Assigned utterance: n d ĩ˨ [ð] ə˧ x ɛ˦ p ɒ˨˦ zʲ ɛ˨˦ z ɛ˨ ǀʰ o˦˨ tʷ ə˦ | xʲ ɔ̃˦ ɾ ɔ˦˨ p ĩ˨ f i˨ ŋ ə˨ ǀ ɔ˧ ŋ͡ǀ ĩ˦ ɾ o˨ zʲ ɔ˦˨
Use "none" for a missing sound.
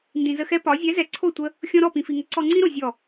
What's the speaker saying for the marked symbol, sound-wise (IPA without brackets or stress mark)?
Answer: z